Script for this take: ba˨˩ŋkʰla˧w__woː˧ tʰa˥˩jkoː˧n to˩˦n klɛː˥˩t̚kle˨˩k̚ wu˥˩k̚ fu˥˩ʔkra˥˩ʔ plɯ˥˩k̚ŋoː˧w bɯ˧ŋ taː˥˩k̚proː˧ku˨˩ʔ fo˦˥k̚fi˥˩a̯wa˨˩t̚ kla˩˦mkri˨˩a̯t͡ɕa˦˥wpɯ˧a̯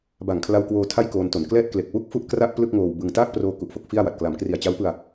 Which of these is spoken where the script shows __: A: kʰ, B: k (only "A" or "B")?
B